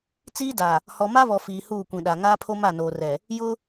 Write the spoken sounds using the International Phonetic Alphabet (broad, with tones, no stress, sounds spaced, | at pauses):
t͡s iː˦ d a˨ | h ɔ˨ m a˦ β ɔ˨ f iː˨ h uː˦˨ kʷ ĩ˨ ɗ a˨ ŋ aː˦ pʰ o˦ m a˦˨ n oː˨ r ɛ˨ | j ʊ˦